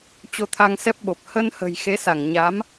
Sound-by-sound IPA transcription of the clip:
t͡ɕ o˧ t̪ʰ a˧ ŋ s ɛ˦˥ p̚ ɓ o˨˩ p̚ h ə˧ n h ə̤˨˩ j x e˨˦ s a˧˩ ŋ ɲ a˨˦ m

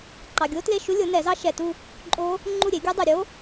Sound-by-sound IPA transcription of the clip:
ǃ ɑ˨ ɡʲ o˦˥ t l e˥˨ ʃ u˦˥ lʲ o˩˥ n ɛ˨˩˦ z ɑ˦˥ ʃ ɛ˨ t u˥˨ | ǃʼ o˦˥ | ŋ͡ǃ u˥˨ ɾʲ e˩˥ ɡʲ u˦˥ dˤ ɛ˨ ɾʲ o˦˥

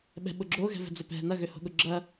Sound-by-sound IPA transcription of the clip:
ɓ ɛ̤ ɓ ʊ ɡ͡ǁ o ɣ ɛ̤ v ɛ̤ d͡z ø p ɛ̤ n ɐ ɣ ø h o̤ ɠ ʊ ɡ͡ǁ ɐ

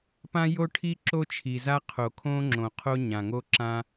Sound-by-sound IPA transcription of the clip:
p ã˦ j o˦ ʈʰ i˦ ǁ o˦ t͡ʃʰ i˨ z a˦ qʰ o˨ kʰ õ˦ ŋ͡ǁ õ˨ qʰ o˦ ɲ ã˨ ŋ o˦ ǁ ã˦

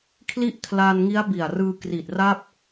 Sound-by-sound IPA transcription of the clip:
kʰ l i˥˩ ʔ kʰ l a˧ n ŋ i˦˥ a̯ b i˨˩ a̯ r ɯː˧ k r i˨˩ t̚ r a˥˩ p̚

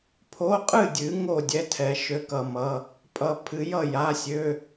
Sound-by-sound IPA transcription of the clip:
pʰ o˧˥˧ qʼ ɨ˥˨ dʲ ɨ˨˥ ŋ o˥˨ dʲ ɛ˦˥ tʰ ɛ˨˥ ʃ ø˦˥ k ʌ˧˥˧ m ʌ˧˥˧ | pʼ ʌ˦˥ pʰ ɨ˨˥ j ʌ˥˨ j a˧˥˧ sʲ ø˧˥˧

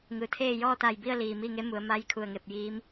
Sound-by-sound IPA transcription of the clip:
ŋ ɯː˩ t̪ʰ eː˥˨ j ɔː˥˨ t̪ a˧˩ j b i˥˨ ə̯ l iː˩ m iː˥˨ ŋ e˧˥ m u˩˧ ə̯ m a˧˥ j kʰ u˧˩ ə̯ ŋ e˧˩ p̚ j iː˧˥ m

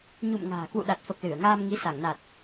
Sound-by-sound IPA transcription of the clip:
ɲ ṵ˧˨ m ŋ a̤ː˨˩ k w ṵ˧˨ ɗ a˨˩ t̚ f ə˨˩ p̚ l ɨ˧˩ ə̯ ŋ aː˧ m ŋ i˨˦ s a˧˩ ŋ n a˨˩ t̚

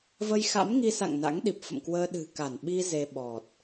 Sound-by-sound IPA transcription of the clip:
v ə˧ j x a̰˧˥ m ŋ i˧ s a̰˧˨ ŋ n a̰˧˥ ŋ ɗ i˨˩ p̚ f ə̰˧˨ m k w əː˧ ɗ ɨ̤˨˩ k a˧˩ n ɓ i˧ z e˧ ɓ ɔ˨˩ t̚

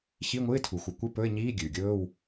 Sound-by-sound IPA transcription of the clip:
ç i˧˥˧ ŋʷ ɨ˧˥˧ ɪ̯ tʰ u˩ x u˩ kʷ ɨ˧˥˧ p ɵ˧˥˧ ɪ̯ ɲ iː˧˥˧ ɡʲ ʉː˩ ɡʲ ɵː˧˥˧ w

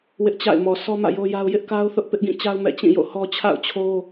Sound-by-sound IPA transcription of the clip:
w ɪ˦ ʔ t͡ɕ a̰˦˨ ɪ̯ m ɔ˨ sʰ ɔ˦ m ä̰˦˨ j o˦ j a˦ ʊ̯ j ɪ˦ ʔ k a˦ ʊ̯ θ ʊ˦ ʔ p ɪ˦ ʔ ɡ ĩ˦˨ t͡ɕ a˦ ʊ̯ m ɛ̰˦˨ t͡ɕ ĩ˦˨ j o̰˦˨ h ɔ˦ t͡ɕʰ a̰˦˨ ʊ̯ t͡ɕʰ o˦

